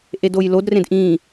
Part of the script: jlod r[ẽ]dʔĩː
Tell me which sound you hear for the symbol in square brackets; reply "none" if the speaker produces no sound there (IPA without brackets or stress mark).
ẽ